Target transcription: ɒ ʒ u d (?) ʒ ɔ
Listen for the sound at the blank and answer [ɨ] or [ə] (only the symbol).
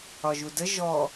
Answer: ə